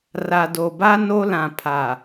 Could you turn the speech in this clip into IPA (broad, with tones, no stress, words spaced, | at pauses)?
ra˨do˨ba˦ no˦lã˨ pʰa˨